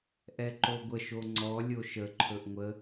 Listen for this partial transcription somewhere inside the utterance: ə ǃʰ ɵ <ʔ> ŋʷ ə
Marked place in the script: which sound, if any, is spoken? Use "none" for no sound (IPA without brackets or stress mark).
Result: ʔ